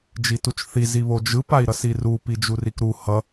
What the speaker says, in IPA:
d͡ʒitut͡ʃθi ziβod͡ʒɯ pai̯ɾʌsiru pid͡ʒurikɾu hʌ

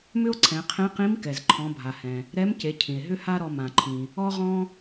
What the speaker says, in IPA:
mʏ˥o̯ǀʰɛ̃˩˧qʰẽ˧˥ qĩ˧˥m kɛ˩zǃʰɔ̃˩˧bʱa˩hɛ̃˩ | ɾɛ˧˥mce˩˧ cʰĩ˩e̯ɦʏ˥ha˥ɾɔ˧ mã˩ǃʰĩ˩ | ɔ˥ʁɔ̃˥

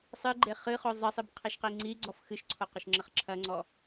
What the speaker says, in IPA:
sˤɨɡ͡ǃe χɨχo zˤɘsˤib qʰiʃqiŋ͡ǀiɡ͡ǀɔf xɨʃǀʰo qɘʃŋ͡ǁɘχǁʰɐŋ͡ǀɔ

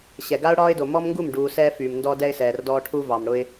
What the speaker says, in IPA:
ɕɛ˨ɡa˦ʊ̯ ɽɒː˦ɪ̯do˨ mɔ˦mŋɡu˦˨m ɖuː˨ sɛː˦fyː˨mndɔː˦ dɛ˦ɪ̯sɛː˨rdɔː˦ ʈʰu˦vɑ˨mɽʊ˦ɪ̯

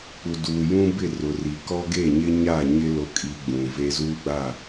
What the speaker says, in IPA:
k͡pu˨duː˨jũ˦bɪ˦˨ rʊ˨ri˨ kɔ˦ɡe˦˨ɲɪ˦ ɲa˦˨ɲɪ˦ lo˨˦kʼi˨ ɡ͡bũ˨ve˦ zuː˦ɡ͡ba˦˨

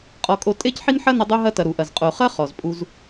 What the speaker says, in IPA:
qʼɔ˧kʼo˧ tʼe˦cħi˦nħɐ˦nɐ˧ dˤu˧ɦɐ˧tɐ˨ ɾu˨ʔɐ˨z qʼo˨χɐ˦ χɔ˨zpʼu˧z

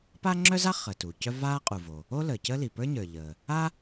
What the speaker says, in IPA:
pa˥ŋ͡ǁœ˥za˥ χəː˩tu˩cœ˥ vaː˥qʼu˩vo˩ | o˥ləː˩cəː˥li˩ pə˞˥ɲə˞˩ ʎəː˩ | a˥

